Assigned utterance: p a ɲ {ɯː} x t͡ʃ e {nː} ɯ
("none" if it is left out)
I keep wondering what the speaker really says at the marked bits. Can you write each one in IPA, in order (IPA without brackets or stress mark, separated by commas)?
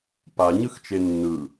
ɯ, nː